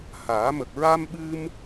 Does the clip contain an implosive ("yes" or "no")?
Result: yes